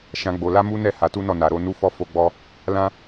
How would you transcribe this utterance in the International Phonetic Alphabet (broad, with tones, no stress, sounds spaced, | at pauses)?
ʃ ã˦ ɡ͡b o˧ l a˦ m u˦ n ɛ˦˨ h a˨˦ t u˦ n ɔ˦˨ n a˨ ɾ o˧ n u˦ f ɔ˦ f o˧ ɡ͡b ɔ˧ | l ã˦